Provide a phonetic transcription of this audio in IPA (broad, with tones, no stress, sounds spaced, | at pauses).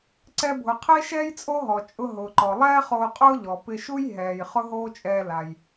ǀ ɛ˧ bʱ ʊ˩ qʰ e˥ ʃ ɛː˥ j t͡sʼ o˥ ɦ ɔ˩ t͡ʃʼ ʊ˧ ɦ ʊː˩ ǃ ɔ˩ lˠ ɛː˥ χ oː˧ qʼ ʊː˥ ʎ ɔ˩ p ɪ˧ ʃ u˥ j ɦ ɛː˩ j χ ʊ˥ ɦ oː˥ t͡ʃʼ ɛː˧ l a˩ j